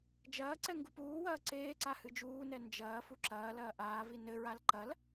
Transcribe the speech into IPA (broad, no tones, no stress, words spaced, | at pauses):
d͡ʒɐːǀɛ ŋɡupuːwɐː ǀeːǀa hɨd͡ʒuːnɛ nd͡ʒɐː fuǁɐːlɐː ʔaːvi nɘɹal ǃɐl